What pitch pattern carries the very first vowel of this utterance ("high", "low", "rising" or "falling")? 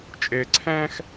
low